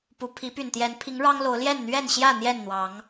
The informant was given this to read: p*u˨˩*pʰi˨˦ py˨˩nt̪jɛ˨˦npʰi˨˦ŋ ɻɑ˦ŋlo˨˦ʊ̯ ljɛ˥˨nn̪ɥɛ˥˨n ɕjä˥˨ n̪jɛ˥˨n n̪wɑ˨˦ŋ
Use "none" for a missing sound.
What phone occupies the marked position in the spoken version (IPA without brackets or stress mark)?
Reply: u˨˩